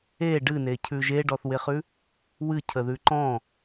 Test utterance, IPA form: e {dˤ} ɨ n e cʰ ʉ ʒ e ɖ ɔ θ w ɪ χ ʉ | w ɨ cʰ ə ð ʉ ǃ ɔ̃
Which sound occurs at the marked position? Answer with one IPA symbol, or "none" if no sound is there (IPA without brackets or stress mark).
ɖ